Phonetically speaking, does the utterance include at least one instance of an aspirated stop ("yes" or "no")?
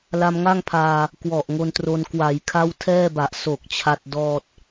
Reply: yes